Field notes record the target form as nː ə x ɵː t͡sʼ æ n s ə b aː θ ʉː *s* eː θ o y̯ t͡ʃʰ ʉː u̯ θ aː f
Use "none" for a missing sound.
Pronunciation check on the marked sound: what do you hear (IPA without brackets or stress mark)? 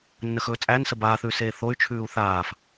s